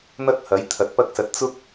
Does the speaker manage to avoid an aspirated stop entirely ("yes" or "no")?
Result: no